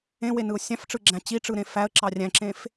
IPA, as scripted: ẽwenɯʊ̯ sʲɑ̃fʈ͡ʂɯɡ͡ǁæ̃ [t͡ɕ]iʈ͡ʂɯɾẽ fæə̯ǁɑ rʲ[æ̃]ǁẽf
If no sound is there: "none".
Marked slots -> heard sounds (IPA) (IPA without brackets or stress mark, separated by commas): t͡ɕ, æ̃